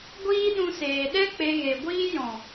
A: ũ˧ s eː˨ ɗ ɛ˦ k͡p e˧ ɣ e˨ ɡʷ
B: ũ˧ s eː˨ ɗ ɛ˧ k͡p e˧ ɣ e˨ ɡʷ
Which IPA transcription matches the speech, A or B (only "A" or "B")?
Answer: A